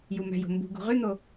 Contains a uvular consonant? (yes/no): yes